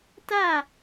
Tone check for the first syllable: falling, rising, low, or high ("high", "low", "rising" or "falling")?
falling